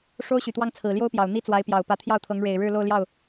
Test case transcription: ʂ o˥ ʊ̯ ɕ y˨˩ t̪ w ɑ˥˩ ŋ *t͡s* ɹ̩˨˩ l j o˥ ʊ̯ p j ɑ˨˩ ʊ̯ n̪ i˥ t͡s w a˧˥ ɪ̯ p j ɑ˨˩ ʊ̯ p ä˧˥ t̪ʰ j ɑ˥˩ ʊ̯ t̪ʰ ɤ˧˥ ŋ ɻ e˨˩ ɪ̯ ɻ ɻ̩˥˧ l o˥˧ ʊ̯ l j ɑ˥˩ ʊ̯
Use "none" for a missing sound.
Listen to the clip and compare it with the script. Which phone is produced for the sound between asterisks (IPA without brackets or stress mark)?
t͡sʰ